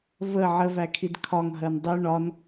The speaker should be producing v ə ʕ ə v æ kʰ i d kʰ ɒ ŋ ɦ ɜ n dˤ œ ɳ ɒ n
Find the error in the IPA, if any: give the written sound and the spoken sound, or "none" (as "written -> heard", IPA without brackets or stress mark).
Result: none